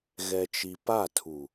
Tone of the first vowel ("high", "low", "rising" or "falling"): low